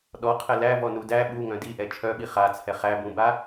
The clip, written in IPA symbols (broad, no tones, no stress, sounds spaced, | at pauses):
ɗ ɔ qʰ ɛ l æ v ɔ n u d æ ɓ u ŋ œ̃ d i ʔ ɛ t͡ʃʰ œ ɓ i χ a t͡sʰ ɛ χ æ b ũ b a